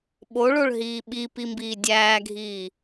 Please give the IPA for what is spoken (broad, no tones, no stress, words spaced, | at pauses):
ɓoɭoɭɦiː ɓipimbiː dʲæːɡʱiː